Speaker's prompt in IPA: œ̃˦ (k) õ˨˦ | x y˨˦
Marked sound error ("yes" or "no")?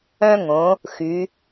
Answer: yes